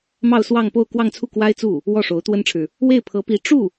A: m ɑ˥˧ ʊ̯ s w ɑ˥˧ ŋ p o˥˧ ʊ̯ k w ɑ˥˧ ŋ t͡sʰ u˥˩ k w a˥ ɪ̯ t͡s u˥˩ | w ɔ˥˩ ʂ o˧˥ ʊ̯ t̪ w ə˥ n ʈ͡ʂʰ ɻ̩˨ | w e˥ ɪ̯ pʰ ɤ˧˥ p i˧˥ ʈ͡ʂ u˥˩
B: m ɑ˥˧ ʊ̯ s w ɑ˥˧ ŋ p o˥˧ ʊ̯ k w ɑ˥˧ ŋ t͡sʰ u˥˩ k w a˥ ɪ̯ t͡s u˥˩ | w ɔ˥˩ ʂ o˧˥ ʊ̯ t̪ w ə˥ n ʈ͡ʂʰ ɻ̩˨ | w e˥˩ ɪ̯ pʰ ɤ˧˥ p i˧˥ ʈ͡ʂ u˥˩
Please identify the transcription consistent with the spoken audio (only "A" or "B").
B